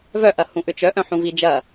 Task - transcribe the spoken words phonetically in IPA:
vœʔɐ hũʔʏt͡ʃœ ʔœ̃ħũvid͡ʒɐ

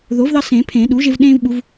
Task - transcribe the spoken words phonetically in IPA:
ðo˩˥vðɑ˦ sẽː˨˩˦pʰẽː˨˩˦ ɗuː˩˥ʒe˦v ɗẽː˦vɓu˨˩˦v

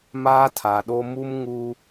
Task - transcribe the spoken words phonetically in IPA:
maː˦tʰa˨ɗo˦ mu˦mŋu˦

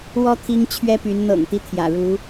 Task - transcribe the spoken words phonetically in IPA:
wɔ˦ t̪ʰi˦ŋt͡ɕʰɥɛ˦py˨˦n n̪ɤ̰˨˩ŋt̪i˦ t̪ʰjä̰˨˩ɻu˨˦

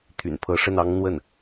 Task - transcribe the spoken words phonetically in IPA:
t̪ʰy̰˨˩npʰɤ˧˥ʂə˥˩n ɑ˥ŋn̪wə˥˩n

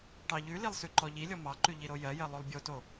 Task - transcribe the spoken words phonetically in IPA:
ʈɑʎʉlilˠ sʉǃɔʎilʲɔ mɑǃʉ ʎiɾojɜjɜ lˠolˠbʲoto

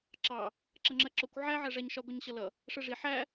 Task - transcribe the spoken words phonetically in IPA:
ǁɑ | ǁʌŋ͡ǁɜǁʊkʷ ʕæ ʕæʐæɲʃɒ ɡʷʌɲɕʌlʌ | ʂɜʐi ħæ

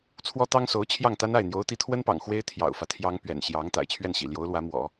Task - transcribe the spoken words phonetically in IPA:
t͡sʰwɔ˥t̪ɑ˥ŋ so˧˥ʊ̯ t͡ɕʰjɑ˥˩ŋt̪a˥na˥˩ɪ̯ n̪jo˧˥ʊ̯t̪i˧˥t̪ʰwə˥npɑ̰˨˩ŋ xwe˥ɪ̯ t̪ʰjɑ̰˨˩ʊ̯fä˦t̪ʰjɑ˥ŋpɥɛ̰˨˩n ɕjɑ˧˥ŋ t̪a̰˨˩ɪ̯t͡ɕʰɥɛ˥˩nɕḭ˨˩ ljo˧˥ʊ̯lwä˧˥ mwɔ̰˨˩˦

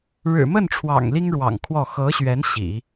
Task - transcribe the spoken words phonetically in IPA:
ɻɻ̩˨˩ mə˥˩nʈ͡ʂʰwɑ̰˨˩ŋ li˥ŋɻwɑ̰˨˩ŋkʰwɔ˥˩ xɤ˧˥ɕɥɛ˧˥n ɕḭ˨˩˦

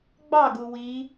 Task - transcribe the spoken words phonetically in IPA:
ɡ͡bɑɡu wi

